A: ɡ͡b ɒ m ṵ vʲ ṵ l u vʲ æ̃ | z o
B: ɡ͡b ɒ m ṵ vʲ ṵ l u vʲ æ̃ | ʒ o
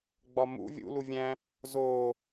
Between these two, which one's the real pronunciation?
A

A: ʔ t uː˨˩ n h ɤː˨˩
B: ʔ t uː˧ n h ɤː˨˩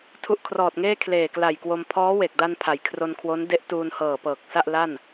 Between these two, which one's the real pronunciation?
B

